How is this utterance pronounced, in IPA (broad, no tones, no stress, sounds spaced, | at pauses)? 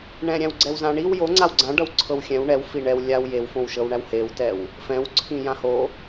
ɳ ɛ̃ ɾʲ æ̃ w ɡ͡ǀ ɛ w z ã ɳ i w j o ŋ͡ǀ a w ɡ͡ǀ ã ɖ ʌ w ǀʰ ɤ w xʲ ɛ̃ w ɳ ɛ w f i ɳ ɛ w lʲ a w j e w f õ w ʃ ɤ w ɳ æ w h e w t ɛ w | f ɛ̃ w ǀʰ ĩ j ã h o